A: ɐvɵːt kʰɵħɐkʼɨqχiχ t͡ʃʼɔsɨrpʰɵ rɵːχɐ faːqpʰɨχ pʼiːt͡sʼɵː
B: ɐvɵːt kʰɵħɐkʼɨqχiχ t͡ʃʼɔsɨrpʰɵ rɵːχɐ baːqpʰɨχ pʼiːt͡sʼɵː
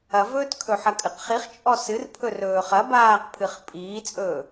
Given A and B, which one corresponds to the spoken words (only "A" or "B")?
B